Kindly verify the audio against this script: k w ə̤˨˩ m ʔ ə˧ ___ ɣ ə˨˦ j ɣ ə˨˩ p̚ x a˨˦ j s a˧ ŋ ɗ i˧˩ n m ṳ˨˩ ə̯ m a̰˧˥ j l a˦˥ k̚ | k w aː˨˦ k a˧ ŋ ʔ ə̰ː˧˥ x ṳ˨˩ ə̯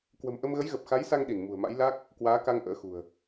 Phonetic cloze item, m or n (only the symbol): m